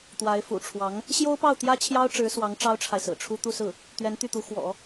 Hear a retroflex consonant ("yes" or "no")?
yes